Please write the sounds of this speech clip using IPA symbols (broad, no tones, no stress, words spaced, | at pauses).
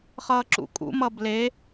χʌːǁṵkʼṵmʌ ble